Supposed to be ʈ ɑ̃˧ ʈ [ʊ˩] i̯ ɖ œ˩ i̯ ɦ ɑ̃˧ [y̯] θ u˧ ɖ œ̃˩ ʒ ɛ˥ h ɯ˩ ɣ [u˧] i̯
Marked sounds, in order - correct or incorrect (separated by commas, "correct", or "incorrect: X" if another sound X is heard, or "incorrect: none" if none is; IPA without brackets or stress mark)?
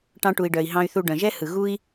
incorrect: u˩, correct, correct